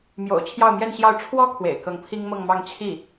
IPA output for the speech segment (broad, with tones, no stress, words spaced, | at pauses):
mjo̰˨˩ʊ̯ t͡ɕʰjɑ˥˧ʊ̯mjɛ˥˧nɕjɑ˥˩ʊ̯ ʈ͡ʂʰwɔ˥kʰwḛ˨˩ɪ̯ kɤ˧˥ŋpʰi˥ŋmɤ˥˧ŋ mɑ˥˧ŋ t͡ɕʰi˥˩